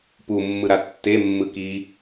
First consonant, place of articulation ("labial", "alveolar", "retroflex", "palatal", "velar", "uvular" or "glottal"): labial